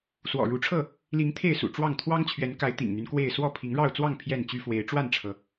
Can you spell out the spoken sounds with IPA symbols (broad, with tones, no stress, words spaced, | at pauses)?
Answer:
swɔ̰˨˩ɻu˨˦ʈ͡ʂʰɤ˥˨ | li˨˦ŋ t̪ʰe˥˨ɪ̯sṵ˨˩ ʈ͡ʂwɑ˥˨ŋ t̪ʰwɑ˦ŋt͡ɕʰɥɛ˨˦nka˨˦ɪ̯ t̪ḭ˨˩ŋn̪y˦n kwe˥˨ɪ̯ swɔ˥˨pʰi˨˦ŋ ɻɑ˥˨ʊ̯t͡swɑ˥˨ŋ pʰjɛ˥˨nt͡ɕy˦fwe˨˦ɪ̯ ʈ͡ʂwa˥˨nʈ͡ʂʰɤ˩